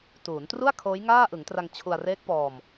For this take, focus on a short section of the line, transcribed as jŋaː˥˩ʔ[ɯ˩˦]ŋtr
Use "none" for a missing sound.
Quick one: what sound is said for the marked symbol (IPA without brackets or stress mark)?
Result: ɯ˩˦